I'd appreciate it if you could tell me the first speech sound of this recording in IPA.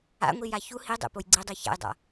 a̰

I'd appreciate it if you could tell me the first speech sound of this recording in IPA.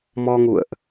m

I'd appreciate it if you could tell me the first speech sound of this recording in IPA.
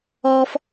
ɔ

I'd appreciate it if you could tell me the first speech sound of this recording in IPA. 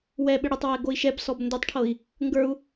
w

